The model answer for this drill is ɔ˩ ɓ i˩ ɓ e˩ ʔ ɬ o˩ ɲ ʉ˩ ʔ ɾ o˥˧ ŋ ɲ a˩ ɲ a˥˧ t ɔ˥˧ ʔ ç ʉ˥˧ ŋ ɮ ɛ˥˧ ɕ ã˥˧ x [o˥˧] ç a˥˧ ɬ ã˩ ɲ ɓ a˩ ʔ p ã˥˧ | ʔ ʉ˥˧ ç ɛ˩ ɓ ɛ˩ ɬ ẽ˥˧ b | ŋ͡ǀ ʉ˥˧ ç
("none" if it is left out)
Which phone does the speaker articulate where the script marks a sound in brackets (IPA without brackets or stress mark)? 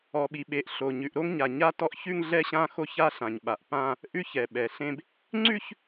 o˥˧